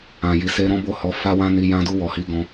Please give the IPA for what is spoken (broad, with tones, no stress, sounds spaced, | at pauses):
ã˨ j i˨ s e˧ ɾ ɔ̃˦ b o˦˨ h ɔ˨˦ f a˦ w ã˦ n i˧ j ã˧ d u˧ w ɔ˨ h i˨˦ ɡ ɔ̃˧